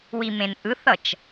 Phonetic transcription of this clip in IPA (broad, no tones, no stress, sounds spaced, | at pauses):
w i m ẽ n ʔ ɯ θ ʌ t͡ʃ